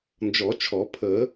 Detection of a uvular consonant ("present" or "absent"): absent